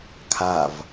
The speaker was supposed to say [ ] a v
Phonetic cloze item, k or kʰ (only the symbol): kʰ